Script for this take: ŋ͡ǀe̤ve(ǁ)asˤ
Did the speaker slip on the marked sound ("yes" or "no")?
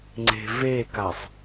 yes